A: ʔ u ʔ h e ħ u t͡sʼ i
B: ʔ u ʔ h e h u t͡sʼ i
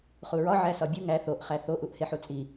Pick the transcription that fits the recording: A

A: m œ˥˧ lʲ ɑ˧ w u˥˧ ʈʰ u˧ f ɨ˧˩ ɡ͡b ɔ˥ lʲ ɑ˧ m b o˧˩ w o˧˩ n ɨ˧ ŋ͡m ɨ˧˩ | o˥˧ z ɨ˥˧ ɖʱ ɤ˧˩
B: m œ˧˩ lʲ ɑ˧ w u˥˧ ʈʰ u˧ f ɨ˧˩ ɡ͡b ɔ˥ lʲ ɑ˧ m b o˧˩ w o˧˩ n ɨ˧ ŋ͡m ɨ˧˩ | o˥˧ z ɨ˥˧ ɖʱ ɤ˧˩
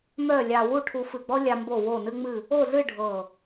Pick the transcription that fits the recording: A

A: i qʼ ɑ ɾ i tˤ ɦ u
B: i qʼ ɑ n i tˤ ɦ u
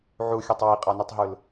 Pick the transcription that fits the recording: B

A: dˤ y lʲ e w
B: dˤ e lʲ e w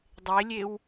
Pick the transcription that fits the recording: B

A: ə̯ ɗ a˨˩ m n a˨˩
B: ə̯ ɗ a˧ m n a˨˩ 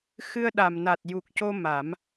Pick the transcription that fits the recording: A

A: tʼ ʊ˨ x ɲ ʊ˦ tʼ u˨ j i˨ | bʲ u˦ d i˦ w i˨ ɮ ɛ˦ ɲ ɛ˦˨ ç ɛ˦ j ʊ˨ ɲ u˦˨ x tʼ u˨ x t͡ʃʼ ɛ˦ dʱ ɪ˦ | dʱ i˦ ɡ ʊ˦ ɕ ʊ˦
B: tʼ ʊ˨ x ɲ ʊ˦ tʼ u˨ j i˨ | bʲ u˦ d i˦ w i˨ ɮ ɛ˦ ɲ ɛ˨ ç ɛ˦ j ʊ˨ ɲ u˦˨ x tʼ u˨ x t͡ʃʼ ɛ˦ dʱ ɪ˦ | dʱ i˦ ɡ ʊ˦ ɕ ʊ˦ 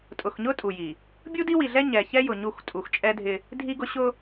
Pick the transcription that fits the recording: B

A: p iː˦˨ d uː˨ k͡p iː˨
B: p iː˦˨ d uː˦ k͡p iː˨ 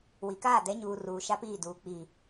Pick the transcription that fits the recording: A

